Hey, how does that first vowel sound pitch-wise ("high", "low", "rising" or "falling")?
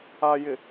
low